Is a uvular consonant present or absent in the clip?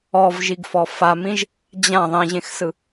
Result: absent